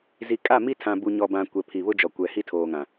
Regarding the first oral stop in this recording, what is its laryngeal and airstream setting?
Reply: ejective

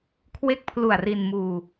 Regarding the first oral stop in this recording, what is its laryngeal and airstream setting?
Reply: aspirated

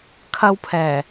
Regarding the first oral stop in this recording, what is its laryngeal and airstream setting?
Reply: aspirated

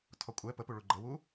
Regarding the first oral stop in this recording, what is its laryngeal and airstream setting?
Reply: aspirated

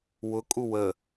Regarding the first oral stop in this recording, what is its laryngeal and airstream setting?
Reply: ejective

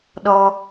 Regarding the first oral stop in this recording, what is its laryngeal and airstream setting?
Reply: implosive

